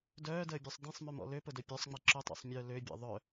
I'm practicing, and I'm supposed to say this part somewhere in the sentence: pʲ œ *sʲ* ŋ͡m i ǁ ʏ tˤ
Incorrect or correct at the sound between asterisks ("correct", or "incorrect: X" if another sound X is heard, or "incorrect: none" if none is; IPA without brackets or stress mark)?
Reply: incorrect: sˤ